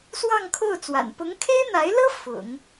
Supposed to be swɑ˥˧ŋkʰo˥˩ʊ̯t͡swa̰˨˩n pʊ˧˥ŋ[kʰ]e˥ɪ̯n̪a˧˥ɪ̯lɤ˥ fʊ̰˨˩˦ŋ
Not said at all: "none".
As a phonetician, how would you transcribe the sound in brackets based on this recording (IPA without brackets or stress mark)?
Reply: kʰ